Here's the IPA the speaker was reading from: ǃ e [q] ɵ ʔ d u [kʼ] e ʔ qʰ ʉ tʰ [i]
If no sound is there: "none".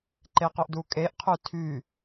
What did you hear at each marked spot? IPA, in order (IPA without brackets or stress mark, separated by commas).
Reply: q, kʼ, y